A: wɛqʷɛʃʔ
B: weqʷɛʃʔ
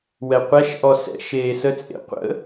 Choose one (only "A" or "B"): A